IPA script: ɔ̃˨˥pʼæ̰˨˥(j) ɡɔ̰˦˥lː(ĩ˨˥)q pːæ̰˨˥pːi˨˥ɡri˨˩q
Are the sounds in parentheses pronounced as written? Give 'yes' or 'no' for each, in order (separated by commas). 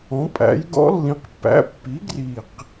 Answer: yes, yes